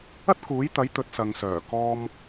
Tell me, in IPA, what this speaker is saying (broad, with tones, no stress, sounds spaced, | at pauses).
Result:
ɐ˥ t̚ k uː˨˥ j t̪ ɐ˨˥ j t̪ ɵ˨˥ t̚ s ɐ˨ ŋ s œː˨˩ k ɔː˧ m